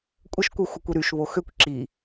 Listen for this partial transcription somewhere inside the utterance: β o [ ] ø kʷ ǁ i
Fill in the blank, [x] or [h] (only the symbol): x